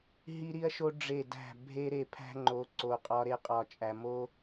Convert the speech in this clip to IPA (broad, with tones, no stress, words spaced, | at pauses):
ɦi˦ɾi˦ɐ̯ʃo˦ ɖ͡ʐe˦˨dæ̤˦˨ bʱe˦ɾe˦˨pʰæ̤˦ ŋ͡ǃo˨˦ ǀo˨qʼɒ˧ ɾe˧qʼɒ˨t͡ʃʼæ˨ mo˦